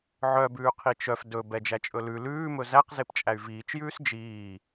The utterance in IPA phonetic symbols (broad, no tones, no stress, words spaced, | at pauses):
ʕœbʉː qʰit͡ʃœf dɵ bɛd͡ʒæt͡ʃʼɵlʉ lʉːmɵ zæqzep t͡ʃʼæy̯viːt͡ʃjʉːs d͡ʒiː